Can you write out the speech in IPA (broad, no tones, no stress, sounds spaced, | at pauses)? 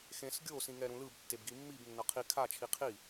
x ẽ s ɡʲ o s ĩ ŋ ɛ ɾ ũ l ɯ b tː e b ɡ i mː i b nː ʌ qʰ i kʰ a t͡ʃʰ i qʰ i